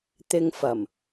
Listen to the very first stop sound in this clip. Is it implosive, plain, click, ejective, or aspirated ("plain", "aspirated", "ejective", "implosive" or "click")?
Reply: plain